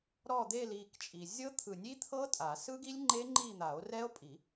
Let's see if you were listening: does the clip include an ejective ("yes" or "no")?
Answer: yes